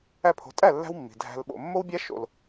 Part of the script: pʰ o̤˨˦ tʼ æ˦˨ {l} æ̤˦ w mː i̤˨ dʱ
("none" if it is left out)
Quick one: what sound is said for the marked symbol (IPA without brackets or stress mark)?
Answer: lː